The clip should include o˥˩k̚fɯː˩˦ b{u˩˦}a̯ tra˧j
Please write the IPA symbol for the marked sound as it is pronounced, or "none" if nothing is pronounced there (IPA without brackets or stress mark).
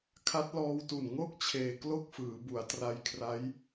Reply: u˩˦